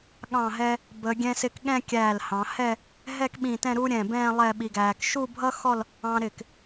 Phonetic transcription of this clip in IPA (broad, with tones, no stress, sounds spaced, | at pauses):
ɠ ɑ̃˧˩ ɦ ɛ˧ | b ə˩˧ ɡʲ ɛ̃˧ s ɪ˧ k ɠ ɛ̃˥˧ kʲ æː˧˩ l h ɑ̃˩˧ h ɛ˥˧ | ɦ ɛ˥˧ k ɓ ĩ˧˩ t ɛ̃˥˧ ɾ u˥ ɾʲ ɛ̃˧˩ b ɛ̃ː˥˧ lˠ ɛ˥˧ ɓ i˧ ɡ æː˧ k ʃ u˥˧ bʱ ʌ˥ x ɔ˥˧ l | ɑ̃˧ ɾ ɪ˧˩ k